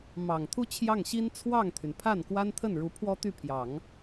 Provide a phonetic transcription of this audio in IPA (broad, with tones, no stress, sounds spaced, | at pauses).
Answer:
m ɑ˨˩ ŋ t̪ʰ u˥ t͡ɕʰ j ɑ˥˩ ŋ ɕ i˥ n t͡sʰ w ɑ˥˩ ŋ t̪ʰ y˩ n pʰ a˥˩ n k w a˥ n t̪ʰ ə˥˩ n ɻ u˧˥ pʰ w ɔ˥ t̪ y˥˩ pʰ j ɑ˨˩˦ ŋ